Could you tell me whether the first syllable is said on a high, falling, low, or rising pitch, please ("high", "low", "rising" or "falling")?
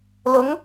rising